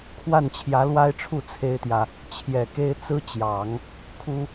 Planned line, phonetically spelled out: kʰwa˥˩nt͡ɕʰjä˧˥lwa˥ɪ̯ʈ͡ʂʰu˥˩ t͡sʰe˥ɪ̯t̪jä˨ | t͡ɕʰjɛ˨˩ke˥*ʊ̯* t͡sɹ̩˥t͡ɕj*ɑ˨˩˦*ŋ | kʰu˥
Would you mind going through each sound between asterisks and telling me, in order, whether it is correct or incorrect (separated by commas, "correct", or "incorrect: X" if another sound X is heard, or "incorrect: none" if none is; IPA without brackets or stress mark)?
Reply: incorrect: ɪ̯, correct